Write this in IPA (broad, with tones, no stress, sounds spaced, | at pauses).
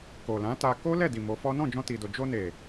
k o˨ l ã˨˦ t a˧ k o˦ l ɛ˦˨ d i˨ m o˨˦ f ɔ˦ n ɔ̃˦˨ d͡ʒ ɔ̃˧ t i˨ d o˨ d͡ʒ o˧ n e˨